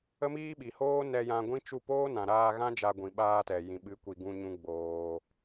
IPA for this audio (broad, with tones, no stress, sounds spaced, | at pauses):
ə˦ m iː˦ ɓ i˨ h oː˦ n ɛ˧ j ã˧ ɡʷ ĩ˦ t͡ʃ u˦˨ p oː˦ n ã˨ ɾ aː˧ ɣ ã˦ d͡ʒ a˧ ɡʷ ĩ˨ ɓ aː˧ t ɛ˨ j ĩ˨ ɓ ɨ˨˦ kʷ i˨ ɡ ũ˧ ɲ ũ˧ ɡ͡b oː˧